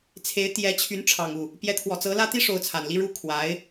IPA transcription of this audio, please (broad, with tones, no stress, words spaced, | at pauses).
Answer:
t͡sʰe˧˥ɪ̯ t̪jɛ˧˥t͡ɕʰy˧˥n ʈ͡ʂʰɑ˨˩ŋu˥˩ | pjɛ˧˥t̪ʰwɔ˨˩t͡sɤ˧˥ lä˥t̪i˥ ʂo˧˥ʊ̯t͡sʰa˨˩nli˥ ɻu˥ kʰwa˧˥ɪ̯